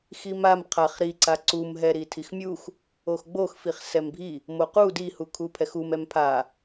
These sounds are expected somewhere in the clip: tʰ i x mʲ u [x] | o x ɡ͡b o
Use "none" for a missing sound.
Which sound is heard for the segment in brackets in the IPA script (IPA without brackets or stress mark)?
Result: x